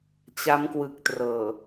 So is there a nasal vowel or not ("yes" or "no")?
no